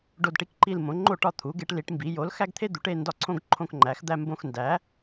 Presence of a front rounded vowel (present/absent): absent